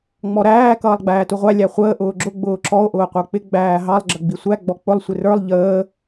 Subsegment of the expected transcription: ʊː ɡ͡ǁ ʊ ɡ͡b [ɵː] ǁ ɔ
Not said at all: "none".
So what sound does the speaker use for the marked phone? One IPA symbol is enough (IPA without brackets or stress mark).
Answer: ʊː